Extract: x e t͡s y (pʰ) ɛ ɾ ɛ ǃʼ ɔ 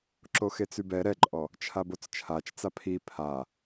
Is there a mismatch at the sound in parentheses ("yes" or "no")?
yes